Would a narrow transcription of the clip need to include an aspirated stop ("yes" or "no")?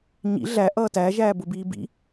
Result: no